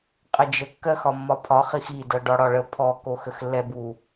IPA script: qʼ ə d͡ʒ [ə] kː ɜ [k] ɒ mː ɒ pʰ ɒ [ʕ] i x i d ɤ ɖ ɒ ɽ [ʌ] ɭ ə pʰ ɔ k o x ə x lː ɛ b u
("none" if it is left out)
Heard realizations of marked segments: ə, x, χ, ɒ

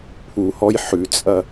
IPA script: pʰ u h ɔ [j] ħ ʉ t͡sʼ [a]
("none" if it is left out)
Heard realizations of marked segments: j, ɐ

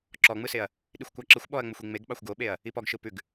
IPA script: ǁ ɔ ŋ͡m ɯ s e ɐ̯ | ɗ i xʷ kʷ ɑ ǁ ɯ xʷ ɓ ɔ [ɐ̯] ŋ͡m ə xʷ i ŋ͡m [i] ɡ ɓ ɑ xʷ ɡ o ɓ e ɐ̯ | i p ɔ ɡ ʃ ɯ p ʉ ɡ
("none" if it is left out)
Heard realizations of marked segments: ɐ̯, e

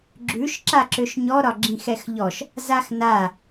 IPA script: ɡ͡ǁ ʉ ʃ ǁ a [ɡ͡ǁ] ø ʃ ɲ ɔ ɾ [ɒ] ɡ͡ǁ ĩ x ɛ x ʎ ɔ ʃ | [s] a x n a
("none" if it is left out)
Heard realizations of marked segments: ǁ, ɒ, z

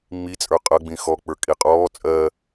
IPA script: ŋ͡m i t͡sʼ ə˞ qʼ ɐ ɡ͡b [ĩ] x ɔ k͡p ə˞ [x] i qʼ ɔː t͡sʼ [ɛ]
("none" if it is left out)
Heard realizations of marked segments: ĩ, kʼ, ɜ

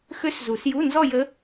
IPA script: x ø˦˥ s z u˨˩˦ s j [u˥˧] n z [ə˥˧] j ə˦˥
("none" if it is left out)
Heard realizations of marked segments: u˧˥˧, ɔ˥˧

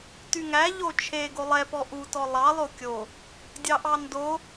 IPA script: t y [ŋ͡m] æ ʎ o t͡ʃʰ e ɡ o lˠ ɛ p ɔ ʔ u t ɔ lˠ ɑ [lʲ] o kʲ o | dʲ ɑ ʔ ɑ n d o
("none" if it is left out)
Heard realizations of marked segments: ŋ, lˠ

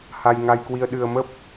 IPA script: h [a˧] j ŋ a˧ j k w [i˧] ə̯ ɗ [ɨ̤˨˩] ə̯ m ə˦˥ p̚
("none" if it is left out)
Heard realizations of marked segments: a˧, i˧, ɨ˧

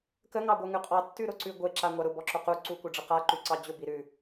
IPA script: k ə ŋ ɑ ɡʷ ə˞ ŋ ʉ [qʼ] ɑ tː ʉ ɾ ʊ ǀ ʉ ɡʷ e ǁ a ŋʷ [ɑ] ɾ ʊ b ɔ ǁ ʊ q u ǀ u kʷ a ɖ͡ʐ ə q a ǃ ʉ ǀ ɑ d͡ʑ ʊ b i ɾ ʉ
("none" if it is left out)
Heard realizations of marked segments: qʼ, ɑ

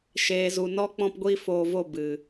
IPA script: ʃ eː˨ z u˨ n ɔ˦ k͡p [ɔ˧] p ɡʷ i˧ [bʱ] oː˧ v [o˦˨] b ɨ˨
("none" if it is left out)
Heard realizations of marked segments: ɔ̃˧, f, o˦˨

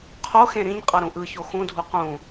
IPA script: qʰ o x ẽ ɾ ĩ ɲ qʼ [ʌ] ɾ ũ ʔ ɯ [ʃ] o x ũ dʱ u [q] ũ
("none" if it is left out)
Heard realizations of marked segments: ʌ, ç, q

